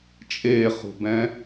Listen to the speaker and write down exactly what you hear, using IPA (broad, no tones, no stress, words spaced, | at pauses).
t͡ʃʼeχṳbɛ̃